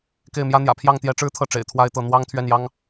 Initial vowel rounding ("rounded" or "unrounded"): unrounded